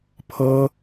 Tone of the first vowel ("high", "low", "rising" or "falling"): high